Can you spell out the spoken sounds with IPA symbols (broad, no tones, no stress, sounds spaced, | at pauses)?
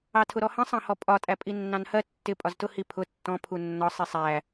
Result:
ɑ tʰ ʊ ɾ ɔ h ɑ̃ sˤ ɑ̃ h ɔ pʼ ɒ tʼ æ pʼ i nː ɑ̃ n h ɜ tː ɪ pʼ ɒ z t ʊ h i pʰ ʊ tː ɔ̃ pʰ u nː ɒ sˤ i sˤ æ